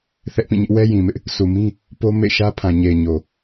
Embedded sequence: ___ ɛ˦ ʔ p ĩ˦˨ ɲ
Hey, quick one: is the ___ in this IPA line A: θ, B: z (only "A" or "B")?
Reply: A